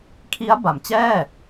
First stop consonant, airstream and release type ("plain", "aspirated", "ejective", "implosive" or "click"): aspirated